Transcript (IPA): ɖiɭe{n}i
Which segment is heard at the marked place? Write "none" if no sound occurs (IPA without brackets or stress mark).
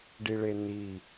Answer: n